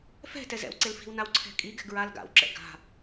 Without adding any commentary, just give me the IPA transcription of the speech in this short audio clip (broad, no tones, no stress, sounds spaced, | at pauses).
f ɛ̤ t ɛ z ɛ̰ w ǀ e l f i̤ w n a w ǀʰ ɛ̤ kʼ i ɡ ɛ̤ ɡ ɹ a l ɡ a̰ w ǁ ɛ̰ ɡ a̤